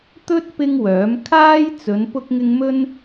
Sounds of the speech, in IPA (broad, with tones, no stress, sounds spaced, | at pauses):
t̪ ɵ˥ t̚ p ɪ˥ ŋ w œː˨˥ m kʰ aː˥ j t͡s ɵ˨˧ n p ʊ˥ k̚ ŋ ɪ˥ ŋ m ɵ˥ n